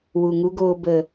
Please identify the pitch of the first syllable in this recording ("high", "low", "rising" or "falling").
low